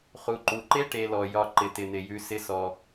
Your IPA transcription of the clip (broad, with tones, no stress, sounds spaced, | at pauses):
χ u˩ ǃ u˩ ǃ e˥ ʈ e˨ l ɔ˩ j ɒ˨ ǃ ɪ˩ t ɪ˩ n̪ ɪ˩ j ʉ˨ s ɪ˨ s ɔ˩